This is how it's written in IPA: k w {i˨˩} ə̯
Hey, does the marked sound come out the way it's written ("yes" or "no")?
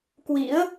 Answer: no